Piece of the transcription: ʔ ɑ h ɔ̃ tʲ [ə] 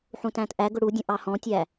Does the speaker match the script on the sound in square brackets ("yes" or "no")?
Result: no